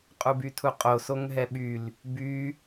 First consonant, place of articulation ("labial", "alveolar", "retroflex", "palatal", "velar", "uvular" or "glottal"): uvular